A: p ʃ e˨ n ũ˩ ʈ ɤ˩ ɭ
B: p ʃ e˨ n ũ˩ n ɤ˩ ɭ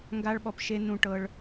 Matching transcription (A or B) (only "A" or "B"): A